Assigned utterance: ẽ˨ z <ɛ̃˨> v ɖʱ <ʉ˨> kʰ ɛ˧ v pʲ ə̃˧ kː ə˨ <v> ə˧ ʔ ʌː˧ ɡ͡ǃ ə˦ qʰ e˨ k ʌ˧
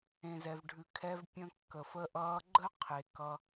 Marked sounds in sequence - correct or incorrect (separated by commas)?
incorrect, correct, incorrect